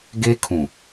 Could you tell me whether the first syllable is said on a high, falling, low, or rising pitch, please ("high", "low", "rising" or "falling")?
high